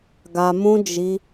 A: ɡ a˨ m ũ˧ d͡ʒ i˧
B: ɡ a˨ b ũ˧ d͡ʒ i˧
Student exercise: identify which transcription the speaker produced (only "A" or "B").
A